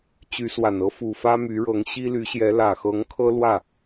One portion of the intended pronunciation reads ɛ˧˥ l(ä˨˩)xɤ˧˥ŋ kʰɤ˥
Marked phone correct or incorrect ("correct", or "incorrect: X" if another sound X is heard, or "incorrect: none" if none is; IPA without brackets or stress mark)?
correct